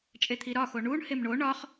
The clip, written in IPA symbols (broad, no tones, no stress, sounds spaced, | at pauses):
t͡ʃʼ e t̪ʰ i ɾ ɒ x o ɳ u ɳ h e m ɳ o ɳ ɒ χ